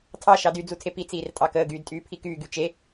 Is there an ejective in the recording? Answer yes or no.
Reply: yes